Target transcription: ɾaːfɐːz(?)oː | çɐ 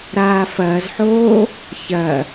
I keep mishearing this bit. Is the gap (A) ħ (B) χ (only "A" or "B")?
A